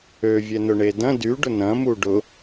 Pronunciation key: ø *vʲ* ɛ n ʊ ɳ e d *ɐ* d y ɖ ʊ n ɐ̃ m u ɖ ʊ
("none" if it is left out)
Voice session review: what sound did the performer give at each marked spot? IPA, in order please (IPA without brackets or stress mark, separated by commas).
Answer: vʲ, ɐ̃